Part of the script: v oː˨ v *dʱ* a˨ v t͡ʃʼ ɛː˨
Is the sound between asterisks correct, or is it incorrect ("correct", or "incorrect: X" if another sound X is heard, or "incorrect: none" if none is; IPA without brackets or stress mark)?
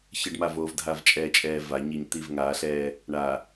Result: correct